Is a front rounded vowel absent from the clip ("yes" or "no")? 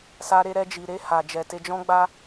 yes